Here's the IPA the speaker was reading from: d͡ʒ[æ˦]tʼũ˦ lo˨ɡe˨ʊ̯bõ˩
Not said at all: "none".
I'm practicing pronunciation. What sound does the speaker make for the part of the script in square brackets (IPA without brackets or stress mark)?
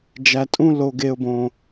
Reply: æ˨